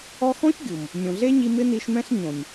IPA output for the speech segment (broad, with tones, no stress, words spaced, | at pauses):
ɔ˧xɔ̃˦ç ɡʲu˨m | nʲõ˨ɮe˦ɲi˧ mɪ˦ni˧ʃmɛ̃˦ɬ ɲõ˨nʲ